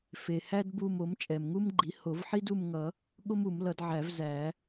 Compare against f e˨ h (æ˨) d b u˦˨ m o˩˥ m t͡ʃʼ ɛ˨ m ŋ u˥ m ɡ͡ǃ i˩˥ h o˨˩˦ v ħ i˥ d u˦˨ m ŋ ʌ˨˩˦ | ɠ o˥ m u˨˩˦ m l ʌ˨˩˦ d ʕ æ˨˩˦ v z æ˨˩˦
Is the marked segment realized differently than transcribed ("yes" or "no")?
yes